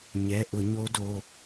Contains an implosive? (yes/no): no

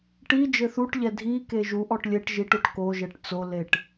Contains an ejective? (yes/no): no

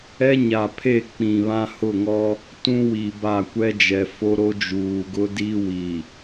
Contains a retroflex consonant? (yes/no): no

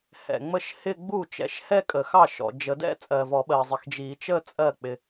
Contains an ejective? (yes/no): yes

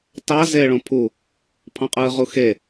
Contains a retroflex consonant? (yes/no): yes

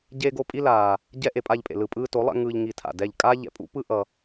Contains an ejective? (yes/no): yes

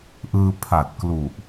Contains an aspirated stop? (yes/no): yes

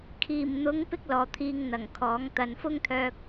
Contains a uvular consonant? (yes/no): no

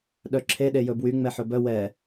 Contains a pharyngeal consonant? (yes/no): yes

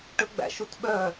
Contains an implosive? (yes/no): yes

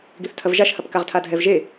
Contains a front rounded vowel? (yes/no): no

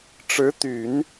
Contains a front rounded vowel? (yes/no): yes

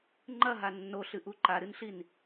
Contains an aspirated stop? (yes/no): no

